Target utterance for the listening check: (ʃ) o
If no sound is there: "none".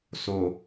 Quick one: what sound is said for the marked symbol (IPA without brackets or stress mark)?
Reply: s